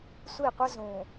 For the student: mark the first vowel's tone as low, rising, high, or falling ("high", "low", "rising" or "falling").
falling